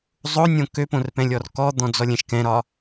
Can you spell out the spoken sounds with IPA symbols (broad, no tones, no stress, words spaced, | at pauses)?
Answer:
zˤonʲõ køpõrpɛ̃lʲɔr kɔd̪ɔ̃d͡zɔlʲɛ̃ʃ kɛ̃ɾɒ